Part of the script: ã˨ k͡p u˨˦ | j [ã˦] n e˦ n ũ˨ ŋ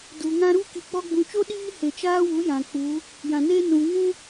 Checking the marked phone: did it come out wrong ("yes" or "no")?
yes